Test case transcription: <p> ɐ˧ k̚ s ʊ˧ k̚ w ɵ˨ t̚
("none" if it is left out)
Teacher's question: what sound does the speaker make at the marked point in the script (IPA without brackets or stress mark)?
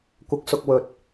kʷ